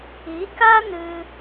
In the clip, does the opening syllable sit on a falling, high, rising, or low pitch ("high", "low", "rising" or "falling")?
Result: rising